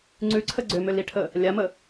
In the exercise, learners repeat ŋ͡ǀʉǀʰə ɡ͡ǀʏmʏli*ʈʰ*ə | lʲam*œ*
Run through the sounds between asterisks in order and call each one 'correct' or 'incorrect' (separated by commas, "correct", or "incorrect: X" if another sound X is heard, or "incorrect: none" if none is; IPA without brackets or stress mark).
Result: correct, incorrect: ə